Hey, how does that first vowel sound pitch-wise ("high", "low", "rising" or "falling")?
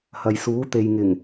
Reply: low